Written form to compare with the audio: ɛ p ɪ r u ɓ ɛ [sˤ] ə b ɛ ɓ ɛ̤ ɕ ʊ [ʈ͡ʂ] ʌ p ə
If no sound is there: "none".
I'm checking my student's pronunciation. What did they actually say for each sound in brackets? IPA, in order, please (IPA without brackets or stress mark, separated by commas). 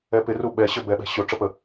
ɕ, ʈ͡ʂ